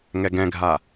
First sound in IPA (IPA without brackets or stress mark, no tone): ŋ